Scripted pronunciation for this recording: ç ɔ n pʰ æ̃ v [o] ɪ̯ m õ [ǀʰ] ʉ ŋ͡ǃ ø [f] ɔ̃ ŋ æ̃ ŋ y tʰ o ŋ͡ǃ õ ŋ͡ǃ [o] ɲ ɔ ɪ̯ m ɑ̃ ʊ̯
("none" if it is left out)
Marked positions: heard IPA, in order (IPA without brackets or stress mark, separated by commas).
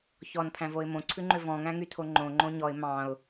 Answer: o, ǀʰ, v, õ